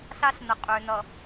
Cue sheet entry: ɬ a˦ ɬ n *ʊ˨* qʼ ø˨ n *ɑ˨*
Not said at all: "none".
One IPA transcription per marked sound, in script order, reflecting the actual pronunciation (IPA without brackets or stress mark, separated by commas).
ə˨, ʌ˨